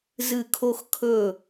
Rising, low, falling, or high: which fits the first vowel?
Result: falling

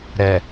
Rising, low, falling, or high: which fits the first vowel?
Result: low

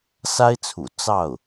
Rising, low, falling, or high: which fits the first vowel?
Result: high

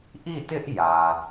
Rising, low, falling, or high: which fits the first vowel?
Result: falling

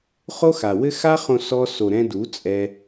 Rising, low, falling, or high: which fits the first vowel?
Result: high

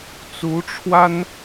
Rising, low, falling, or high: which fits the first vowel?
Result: rising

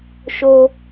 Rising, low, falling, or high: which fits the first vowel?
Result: high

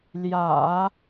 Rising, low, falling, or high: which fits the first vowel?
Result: low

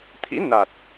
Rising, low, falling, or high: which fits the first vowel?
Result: rising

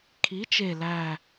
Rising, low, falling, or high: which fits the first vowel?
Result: rising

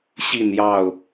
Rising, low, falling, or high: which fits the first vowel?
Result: falling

